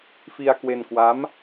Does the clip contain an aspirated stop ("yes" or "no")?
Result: no